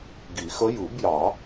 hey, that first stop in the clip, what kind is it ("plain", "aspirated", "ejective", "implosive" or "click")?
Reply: plain